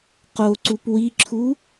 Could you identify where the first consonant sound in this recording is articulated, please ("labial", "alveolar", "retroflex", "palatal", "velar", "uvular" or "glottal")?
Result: uvular